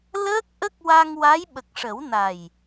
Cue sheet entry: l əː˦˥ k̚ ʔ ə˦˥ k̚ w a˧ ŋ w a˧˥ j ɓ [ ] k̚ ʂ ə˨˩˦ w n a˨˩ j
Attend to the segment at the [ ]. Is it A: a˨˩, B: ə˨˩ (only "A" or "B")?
B